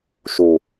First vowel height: high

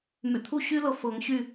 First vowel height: high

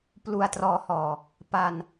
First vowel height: high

